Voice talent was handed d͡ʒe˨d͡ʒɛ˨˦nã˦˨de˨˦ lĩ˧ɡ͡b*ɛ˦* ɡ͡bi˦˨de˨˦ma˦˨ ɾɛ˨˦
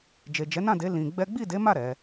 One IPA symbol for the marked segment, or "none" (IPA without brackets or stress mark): ɛ˦